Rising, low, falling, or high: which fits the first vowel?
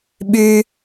high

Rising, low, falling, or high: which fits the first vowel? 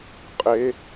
rising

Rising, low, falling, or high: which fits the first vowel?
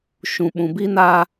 low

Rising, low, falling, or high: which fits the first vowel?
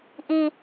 low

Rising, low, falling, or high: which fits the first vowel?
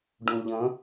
low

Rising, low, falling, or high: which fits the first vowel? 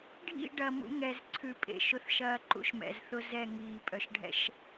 falling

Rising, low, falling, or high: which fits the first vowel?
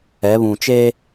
rising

